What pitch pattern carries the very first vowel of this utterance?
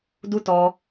high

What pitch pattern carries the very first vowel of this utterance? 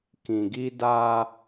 low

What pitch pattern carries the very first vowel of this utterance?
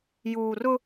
low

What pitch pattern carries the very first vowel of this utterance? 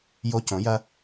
high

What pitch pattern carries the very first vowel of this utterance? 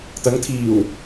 rising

